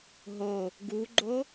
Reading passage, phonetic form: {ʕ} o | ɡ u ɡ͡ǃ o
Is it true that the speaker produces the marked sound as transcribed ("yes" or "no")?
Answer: no